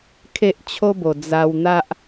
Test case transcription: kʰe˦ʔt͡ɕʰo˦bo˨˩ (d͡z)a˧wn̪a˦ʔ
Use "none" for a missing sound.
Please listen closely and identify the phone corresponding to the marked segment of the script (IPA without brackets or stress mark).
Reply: d͡z